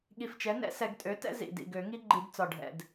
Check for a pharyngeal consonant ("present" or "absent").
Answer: absent